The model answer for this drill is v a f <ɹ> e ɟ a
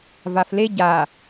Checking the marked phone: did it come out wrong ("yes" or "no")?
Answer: yes